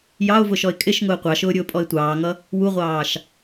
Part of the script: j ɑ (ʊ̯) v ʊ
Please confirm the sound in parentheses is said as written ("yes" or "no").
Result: yes